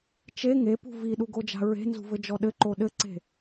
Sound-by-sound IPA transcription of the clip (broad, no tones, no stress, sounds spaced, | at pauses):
t͡ʃ e ŋ e p ṳ v i ɗ u ɡ o d͡ʒ a̤ ɹ e̤ n z ṳ v ɘ d͡ʒ ɔ ɗ ɘ ǃ o ɗ ɘ ǀ e̤